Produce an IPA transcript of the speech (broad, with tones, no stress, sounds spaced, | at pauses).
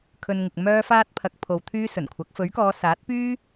kʰ ɵ˧ n ŋ ɪ˨ k̚ m œː˧ f aː˧ t̚ pʰ ɐ˨˥ k̚ pʰ o˨ w t̪ʰ yː˥ s ɵ˨˩ n kʷʰ ɐ˨˥ k̚ f ɵ˨˥ ɥ k ɔː˨˧ s aː˨˥ t̚ p yː˥